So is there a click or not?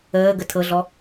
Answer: no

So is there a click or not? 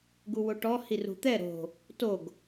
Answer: no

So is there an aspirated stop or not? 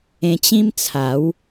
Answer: yes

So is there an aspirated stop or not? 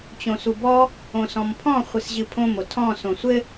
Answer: yes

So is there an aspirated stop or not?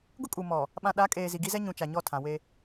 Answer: yes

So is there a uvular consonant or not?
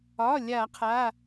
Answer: yes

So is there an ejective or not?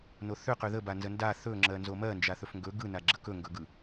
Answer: no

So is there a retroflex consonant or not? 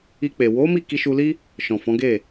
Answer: no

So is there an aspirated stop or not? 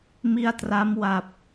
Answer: no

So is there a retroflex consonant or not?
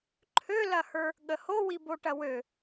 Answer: yes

